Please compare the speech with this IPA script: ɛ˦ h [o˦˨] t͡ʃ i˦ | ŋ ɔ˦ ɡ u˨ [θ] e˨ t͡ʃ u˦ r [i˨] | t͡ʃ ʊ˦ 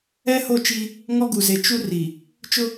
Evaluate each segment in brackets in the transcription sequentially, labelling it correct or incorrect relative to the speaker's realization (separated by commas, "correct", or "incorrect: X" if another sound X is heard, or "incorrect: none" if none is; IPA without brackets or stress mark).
correct, incorrect: z, correct